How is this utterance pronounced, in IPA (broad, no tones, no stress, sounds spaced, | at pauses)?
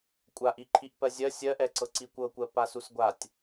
kʷʼ a ʔ i ǃʰ i ʔ p ɜ zʲ ɜ sʲ ɜ ʔ ɛ ǀ ɤ ǀ i kʷ ɤ kʷ ɜ p a s u s ɡʷ a tʲ